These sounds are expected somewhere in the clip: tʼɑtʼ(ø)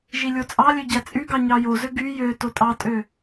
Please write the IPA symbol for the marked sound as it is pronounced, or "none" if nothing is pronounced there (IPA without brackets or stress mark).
ø